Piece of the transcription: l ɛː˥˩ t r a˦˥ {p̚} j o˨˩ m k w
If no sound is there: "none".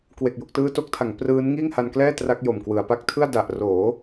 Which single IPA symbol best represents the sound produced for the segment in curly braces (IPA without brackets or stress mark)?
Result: k̚